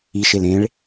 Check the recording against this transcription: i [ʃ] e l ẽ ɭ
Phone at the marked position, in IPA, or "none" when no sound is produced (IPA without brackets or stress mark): ʃ